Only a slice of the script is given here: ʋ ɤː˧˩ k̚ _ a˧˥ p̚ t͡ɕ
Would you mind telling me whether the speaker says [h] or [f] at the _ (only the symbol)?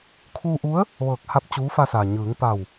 h